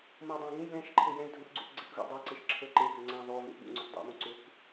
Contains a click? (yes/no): yes